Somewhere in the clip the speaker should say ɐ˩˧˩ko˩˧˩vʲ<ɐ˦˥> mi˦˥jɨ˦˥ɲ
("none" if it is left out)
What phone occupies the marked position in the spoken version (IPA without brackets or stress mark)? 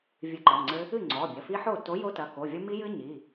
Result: ɐ˦˥